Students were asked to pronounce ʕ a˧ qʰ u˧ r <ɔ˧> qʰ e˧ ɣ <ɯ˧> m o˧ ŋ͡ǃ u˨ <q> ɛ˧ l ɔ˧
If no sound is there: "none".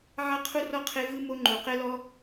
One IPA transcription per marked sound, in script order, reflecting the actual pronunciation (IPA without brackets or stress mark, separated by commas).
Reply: ɔ˧, ɯ˧, q